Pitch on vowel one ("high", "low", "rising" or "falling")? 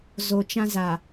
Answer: low